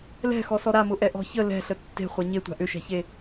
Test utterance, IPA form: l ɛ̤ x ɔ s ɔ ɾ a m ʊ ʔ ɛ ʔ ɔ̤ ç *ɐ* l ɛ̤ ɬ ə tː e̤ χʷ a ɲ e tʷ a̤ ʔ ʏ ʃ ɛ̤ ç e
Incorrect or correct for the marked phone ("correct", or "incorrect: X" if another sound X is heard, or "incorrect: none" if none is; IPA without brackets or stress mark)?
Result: incorrect: ə